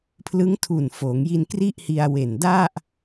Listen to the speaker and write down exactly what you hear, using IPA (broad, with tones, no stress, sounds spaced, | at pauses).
pʰ l ɯ˦˥ ŋ tʰ u˨˩ n f oː˩˦ ŋ j i˧ n k r i˥˩ ʔ h i˧ a̯ w e˨˩ n d a˥˩ ʔ